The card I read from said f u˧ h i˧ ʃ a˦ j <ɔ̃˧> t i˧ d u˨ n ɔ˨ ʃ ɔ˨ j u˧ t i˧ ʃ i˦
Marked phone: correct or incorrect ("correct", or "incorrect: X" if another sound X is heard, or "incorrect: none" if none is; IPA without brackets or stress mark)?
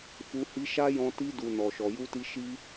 correct